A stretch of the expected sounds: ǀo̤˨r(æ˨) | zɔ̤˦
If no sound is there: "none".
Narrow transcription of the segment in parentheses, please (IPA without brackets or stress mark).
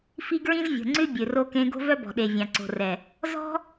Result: ɛ˨